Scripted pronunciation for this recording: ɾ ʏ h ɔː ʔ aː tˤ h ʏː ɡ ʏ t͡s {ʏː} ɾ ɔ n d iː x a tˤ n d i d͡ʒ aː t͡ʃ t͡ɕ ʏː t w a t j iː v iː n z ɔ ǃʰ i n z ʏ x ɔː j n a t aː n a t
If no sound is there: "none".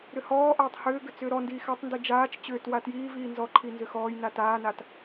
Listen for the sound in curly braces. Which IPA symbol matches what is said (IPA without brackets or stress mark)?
ʏː